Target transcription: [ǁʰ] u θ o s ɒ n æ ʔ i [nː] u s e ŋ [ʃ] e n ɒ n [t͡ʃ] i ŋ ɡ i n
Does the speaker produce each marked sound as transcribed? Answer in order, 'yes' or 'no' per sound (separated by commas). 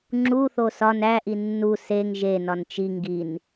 no, yes, no, yes